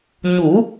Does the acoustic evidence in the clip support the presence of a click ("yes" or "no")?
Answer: no